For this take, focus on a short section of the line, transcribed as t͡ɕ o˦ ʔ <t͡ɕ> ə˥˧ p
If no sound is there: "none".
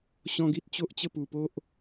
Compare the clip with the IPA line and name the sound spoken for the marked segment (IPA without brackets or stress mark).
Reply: t͡ɕ